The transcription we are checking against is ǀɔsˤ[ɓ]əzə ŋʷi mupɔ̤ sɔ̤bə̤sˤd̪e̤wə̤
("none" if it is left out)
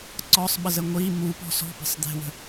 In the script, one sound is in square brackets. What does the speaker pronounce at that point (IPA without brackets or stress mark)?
ɓ